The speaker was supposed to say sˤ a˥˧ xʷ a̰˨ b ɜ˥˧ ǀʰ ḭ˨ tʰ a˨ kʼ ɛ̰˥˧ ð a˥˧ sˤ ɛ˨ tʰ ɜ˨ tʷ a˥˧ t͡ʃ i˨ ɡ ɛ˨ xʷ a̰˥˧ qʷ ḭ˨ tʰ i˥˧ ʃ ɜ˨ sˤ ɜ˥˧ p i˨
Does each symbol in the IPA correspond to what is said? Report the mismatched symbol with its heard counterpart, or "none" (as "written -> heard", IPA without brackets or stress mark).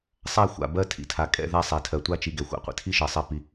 ǀʰ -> tʰ